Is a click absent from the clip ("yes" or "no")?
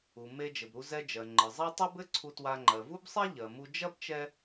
no